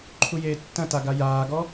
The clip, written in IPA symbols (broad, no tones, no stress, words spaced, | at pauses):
ǃʰujeːtːɐ̃ta ɡajaːɡɔ